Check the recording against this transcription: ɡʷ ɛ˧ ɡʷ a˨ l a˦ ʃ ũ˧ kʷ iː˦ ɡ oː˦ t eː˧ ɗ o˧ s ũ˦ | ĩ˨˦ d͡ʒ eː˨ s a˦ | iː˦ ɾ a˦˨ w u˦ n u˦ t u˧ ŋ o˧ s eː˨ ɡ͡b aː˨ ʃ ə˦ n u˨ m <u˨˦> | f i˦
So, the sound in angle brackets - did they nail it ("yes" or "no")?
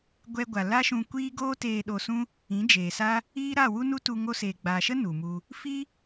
no